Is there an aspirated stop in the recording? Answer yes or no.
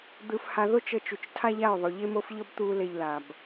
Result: yes